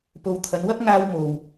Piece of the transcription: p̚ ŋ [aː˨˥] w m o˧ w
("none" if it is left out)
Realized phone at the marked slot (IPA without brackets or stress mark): aː˥